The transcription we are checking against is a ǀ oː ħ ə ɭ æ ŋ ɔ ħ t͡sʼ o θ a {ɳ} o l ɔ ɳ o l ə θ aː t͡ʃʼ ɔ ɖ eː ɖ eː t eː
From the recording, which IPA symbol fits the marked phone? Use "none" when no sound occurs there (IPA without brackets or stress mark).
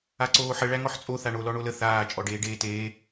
ɳ